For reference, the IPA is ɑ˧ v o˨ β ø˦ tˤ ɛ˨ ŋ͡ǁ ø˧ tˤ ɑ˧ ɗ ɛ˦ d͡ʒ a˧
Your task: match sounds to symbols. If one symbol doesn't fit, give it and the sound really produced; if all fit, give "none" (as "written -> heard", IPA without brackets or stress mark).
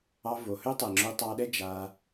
β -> h